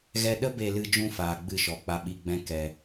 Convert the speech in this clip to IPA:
ɣɛ˧ ɗə˦ be˧lɨ˧d͡ʒũ˧ faː˨ɡ͡bɨ˧ʃɔ˨ k͡pa˧ɓi˧ɡ͡bɛ̃˦ kɛ˧

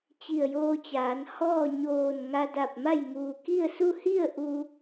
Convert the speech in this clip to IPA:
t͡ɕi˧˩ə̯joː˧t͡ɕaː˩˧nhɔː˥˨ ɲoː˧˩n ŋa˧da˧˩p̚ma˥˨j muː˩ki˥˨ə̯su˥˨ hi˥˨ə̯ ʔu˧

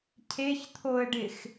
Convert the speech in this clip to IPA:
cʰeçt̪ʰoə̯ɖɪx

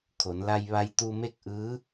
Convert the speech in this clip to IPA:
kʰo˩˧nla˧j ʋa˧jt̪u˧me˥˨k̚ʔɯː˧˥

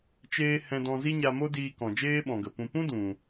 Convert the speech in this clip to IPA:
t͡ʃeː˦ hɛ̃˧dɔ̃˧zi˦ ɲa˧mo˦diː˧ kɔ̃˨d͡ʒeː˦ɓɔ̃˨ɡə˨ pũ˨pũ˦ dũ˨

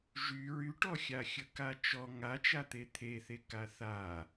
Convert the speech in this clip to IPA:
ʒy ɹyʈɔxʲa xʲəkat͡ʃɔ ŋat͡ʃat̪e t̪ʰeθe kaθa

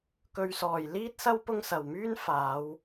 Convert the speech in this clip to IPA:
kɵ˧ɥsɔː˨j liː˥t̚sɐ˥w pʊ˥ŋ sɐ˨wmyː˥n faː˨˧w

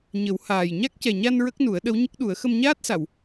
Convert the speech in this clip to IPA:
ɲə˨˩˦whaː˨˩j ɲa˦˥k̚cɛ˨˩ɲa˧n ɹə˦˥k̚nu˨˩˦ə̯ ɗə˧˥wɲə˦˥k̚ɗu˨˩˦ə̯ xə˧mɲaː˦˥t̚sa˨˩˨w

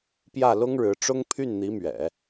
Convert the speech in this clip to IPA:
pjä˥˩lʊ˥ŋɻɻ̩˧˥ʈ͡ʂʊ˥ŋ pʰy˥˩nn̪i˧˥mɥɛ̰˨˩˦

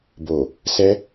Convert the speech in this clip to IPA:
bo˨ | sɛ˧

